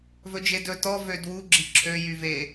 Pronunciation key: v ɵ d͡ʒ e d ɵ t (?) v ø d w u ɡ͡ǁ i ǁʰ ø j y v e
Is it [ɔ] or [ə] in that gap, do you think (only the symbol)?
ɔ